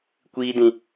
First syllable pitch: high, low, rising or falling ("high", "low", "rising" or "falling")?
high